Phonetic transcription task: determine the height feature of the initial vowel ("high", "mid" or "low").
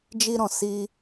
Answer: high